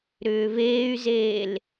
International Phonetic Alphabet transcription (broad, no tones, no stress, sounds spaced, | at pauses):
ɾ ʏː v eː y̯ z eː l